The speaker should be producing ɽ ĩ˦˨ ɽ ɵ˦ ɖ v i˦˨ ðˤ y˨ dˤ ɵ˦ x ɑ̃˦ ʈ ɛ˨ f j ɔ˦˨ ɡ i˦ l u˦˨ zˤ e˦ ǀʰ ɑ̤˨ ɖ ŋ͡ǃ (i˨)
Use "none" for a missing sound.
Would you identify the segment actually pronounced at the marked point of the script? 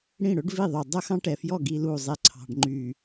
y˨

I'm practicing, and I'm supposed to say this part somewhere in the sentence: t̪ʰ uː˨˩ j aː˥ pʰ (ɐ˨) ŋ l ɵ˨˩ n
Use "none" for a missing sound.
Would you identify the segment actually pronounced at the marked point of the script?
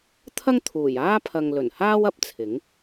ɐ˨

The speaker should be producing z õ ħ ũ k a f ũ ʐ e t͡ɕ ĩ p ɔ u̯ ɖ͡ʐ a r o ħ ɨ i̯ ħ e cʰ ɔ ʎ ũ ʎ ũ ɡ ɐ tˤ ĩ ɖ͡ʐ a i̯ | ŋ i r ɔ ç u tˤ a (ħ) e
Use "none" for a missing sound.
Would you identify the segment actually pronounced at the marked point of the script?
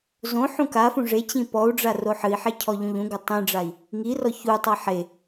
ħ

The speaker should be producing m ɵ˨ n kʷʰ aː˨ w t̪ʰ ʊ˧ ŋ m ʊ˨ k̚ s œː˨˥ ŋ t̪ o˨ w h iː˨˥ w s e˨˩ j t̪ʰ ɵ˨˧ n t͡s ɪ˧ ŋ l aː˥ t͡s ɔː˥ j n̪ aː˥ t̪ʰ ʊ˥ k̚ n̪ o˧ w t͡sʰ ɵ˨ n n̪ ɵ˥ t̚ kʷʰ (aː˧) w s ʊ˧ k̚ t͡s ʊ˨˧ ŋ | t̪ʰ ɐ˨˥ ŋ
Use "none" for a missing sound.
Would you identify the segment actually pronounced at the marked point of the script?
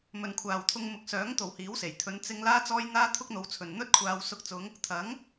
aː˧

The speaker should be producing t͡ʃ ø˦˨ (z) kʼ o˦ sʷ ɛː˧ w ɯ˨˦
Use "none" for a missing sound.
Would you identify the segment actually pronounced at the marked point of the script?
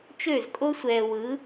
z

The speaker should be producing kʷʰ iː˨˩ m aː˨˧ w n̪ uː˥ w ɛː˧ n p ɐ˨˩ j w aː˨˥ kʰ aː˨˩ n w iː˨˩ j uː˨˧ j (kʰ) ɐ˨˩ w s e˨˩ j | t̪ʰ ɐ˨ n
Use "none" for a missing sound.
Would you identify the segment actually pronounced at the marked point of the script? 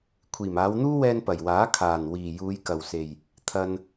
k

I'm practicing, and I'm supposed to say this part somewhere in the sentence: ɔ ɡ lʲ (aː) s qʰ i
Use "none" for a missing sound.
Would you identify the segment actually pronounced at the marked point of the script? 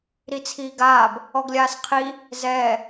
aː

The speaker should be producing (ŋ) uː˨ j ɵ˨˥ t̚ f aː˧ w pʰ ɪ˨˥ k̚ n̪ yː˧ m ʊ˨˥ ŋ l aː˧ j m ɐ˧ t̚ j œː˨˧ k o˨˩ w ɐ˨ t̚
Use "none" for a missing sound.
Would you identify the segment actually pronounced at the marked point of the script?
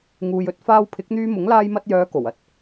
ŋ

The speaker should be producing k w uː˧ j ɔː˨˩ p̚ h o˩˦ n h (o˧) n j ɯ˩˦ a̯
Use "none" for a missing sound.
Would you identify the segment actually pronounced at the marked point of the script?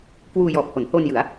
o˧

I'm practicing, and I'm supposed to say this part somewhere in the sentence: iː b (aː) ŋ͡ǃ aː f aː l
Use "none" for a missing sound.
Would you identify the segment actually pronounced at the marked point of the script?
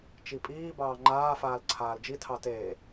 ɑː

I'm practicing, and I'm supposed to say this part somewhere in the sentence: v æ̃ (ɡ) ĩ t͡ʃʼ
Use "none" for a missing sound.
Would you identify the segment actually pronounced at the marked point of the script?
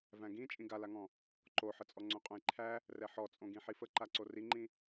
ɡ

